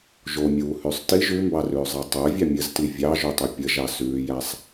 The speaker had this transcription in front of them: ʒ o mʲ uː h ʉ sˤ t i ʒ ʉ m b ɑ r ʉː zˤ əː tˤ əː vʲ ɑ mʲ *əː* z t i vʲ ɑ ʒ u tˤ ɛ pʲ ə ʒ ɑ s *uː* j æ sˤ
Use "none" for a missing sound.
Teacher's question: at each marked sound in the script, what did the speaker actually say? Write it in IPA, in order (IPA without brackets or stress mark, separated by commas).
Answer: ə, ʉː